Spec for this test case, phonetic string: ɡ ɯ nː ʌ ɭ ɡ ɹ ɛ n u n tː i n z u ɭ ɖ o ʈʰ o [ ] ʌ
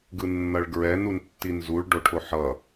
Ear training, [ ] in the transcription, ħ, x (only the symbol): ħ